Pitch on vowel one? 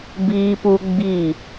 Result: high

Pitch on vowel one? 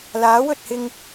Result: rising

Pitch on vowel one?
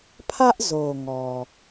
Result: high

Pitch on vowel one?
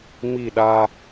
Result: falling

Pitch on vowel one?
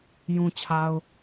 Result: low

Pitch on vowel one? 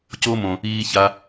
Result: high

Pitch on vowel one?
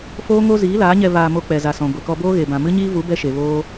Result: high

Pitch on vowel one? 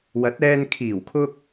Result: rising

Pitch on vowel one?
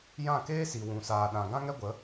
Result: falling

